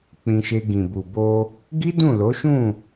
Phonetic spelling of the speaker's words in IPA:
k͡pĩ˧ʃe˧ ɡĩ˨bu˨ bo˧ | ɡi˦dũ˦˨ lo˨˦ʃũ˦˨

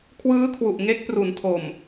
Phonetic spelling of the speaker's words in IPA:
kʰwɯː˦˥kʰwu˨˩ʔ ŋe˦˥k̚pru˩˦n tʰo˨˩m

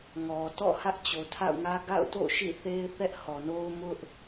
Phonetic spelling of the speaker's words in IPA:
ŋɔ˨ tɔ̰˦˨ hä˦ʔt͡ɕo˨tʰa̰˦˨ʊ̯ŋä˦ ɡa̰˦˨ʊ̯to̰˦˨ ʃḭ˦˨θe˦ɪ̯ θɛ˦ʔhɔ˨no˦ʊ̯ mʊ˦ʔ

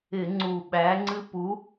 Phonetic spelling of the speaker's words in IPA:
ɪ˧˩˧ŋ͡ǀu˨˩ɓæ˨˥ŋ͡ǀɨ˥ pu˨˥

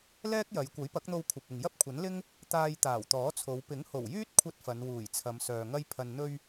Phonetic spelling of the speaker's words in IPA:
lɛː˥k̚jɐ˨˧j kʷɐ˨˥jpɐ˨˥k̚n̪o˧w kʷʰɐ˨p̚ɪ˨ŋ jɐ˥p̚kʷʰɐ˨˥nlɪ˥ŋ | t̪aː˧jt̪aː˨˩wt̪ɔː˨˥t͡sʰo˨˧w pɪ˨˥ŋho˨˩wjyː˥t̚kʷʰɐ˧t̚ fɐ˨˧nwuː˨˩jt͡sʰɐ˨˧m sœː˨ŋɐ˥jpʰɐ˧n n̪ɵ˧ɥ

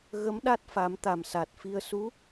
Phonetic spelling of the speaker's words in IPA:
ɣə˧˥mɗa˦˥t̚fa˨˩˦m t̪a˨˩msa˨˩t̚fi˧ə̯ su˧˥

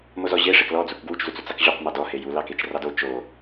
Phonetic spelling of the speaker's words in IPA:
mozɔʑe ʂeklɔd͡zuk ɡwut͡ʃzu t͡sut͡sɑkʑoq mɑdɔhe ju lɑket͡ʃrɑdo t͡ʃo

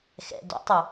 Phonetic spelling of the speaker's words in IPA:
xɛ̰ dɔ̰tˤu

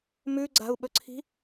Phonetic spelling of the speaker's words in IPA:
mʉɡ͡ǀa̤u̯ɓɵǀʰi̤

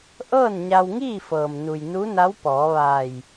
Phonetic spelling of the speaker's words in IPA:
ʔɤː˥˨nɲa˧wŋiː˥˨fɤː˩m nu˩jnu˧˥na˧˥w pɔː˩˧ʋaː˧˩j

